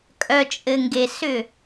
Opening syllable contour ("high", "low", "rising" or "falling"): low